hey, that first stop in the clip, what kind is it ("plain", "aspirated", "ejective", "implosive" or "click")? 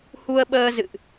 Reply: implosive